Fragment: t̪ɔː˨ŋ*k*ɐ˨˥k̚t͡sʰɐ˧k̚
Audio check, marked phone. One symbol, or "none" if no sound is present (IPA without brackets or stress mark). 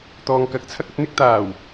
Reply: k